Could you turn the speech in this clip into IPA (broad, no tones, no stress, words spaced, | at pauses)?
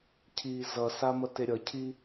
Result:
cʰiːzʌsa mʌteɾʲʌcʰi